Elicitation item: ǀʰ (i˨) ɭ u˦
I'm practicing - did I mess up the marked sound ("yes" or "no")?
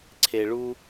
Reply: yes